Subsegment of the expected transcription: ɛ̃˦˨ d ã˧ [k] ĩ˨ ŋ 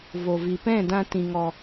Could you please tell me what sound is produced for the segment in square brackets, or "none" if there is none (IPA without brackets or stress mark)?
t